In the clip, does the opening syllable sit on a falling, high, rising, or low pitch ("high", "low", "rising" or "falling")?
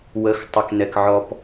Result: low